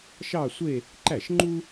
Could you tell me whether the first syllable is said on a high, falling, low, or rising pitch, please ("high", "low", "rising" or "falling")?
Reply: falling